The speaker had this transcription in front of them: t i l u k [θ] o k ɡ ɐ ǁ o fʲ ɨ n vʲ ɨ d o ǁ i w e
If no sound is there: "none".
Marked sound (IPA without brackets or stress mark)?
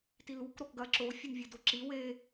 ɾ